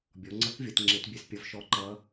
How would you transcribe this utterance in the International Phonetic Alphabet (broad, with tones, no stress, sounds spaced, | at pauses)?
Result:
bʲ ɔ˩˧ ŋ͡ǀ ʌ˧˥ k vʲ ʌ˩˧ t ŋ͡ǁ e˧˥ t bʲ e˧˥ s pʲ ʌ˧˥ v ʃ ɔ˧˥ ǃ ʌ˧˥